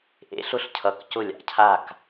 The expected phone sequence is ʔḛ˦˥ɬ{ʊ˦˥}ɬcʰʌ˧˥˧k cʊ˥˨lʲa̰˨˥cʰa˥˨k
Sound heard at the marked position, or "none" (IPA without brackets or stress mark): ʊ˥˨